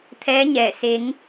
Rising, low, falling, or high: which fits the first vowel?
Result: rising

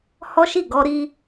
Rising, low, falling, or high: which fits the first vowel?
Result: high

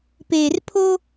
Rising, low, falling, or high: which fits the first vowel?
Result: low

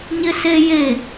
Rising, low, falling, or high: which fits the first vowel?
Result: high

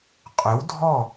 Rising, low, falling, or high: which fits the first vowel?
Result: rising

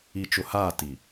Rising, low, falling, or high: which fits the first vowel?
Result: low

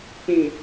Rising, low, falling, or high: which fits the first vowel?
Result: low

